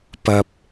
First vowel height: low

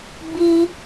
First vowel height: high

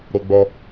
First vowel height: mid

